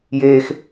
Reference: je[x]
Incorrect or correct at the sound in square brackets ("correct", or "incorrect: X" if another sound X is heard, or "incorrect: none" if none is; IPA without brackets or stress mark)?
correct